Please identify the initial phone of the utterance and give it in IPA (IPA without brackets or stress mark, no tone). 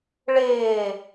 ɭ